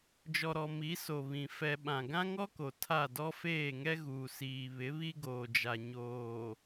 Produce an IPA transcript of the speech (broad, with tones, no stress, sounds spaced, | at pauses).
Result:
d͡ʒ ɔ˨ ɾ ɔ˨ m i˨˦ s o˨ β ĩ˨ f ɛ˨ ɓ ã˨ ɡ ã˦ ŋ ɔ˦ k o˨ tʰ a˦˨ d ɔ˦ f eː˦˨ ŋ ɛ˦ ɣ uː˨ s iː˨ β ɪ˨˦ β i˦ ɡ oː˨ d͡ʒ a˨ ɲ oː˨